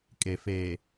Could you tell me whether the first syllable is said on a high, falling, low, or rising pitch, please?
low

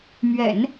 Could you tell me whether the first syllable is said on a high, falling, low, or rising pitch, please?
low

